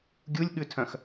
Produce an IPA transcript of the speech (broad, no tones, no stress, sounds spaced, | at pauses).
ɡʲ u lʲ ɠ ʉ tʰ œ̃ x